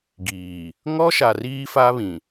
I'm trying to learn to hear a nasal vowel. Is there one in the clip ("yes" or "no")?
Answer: yes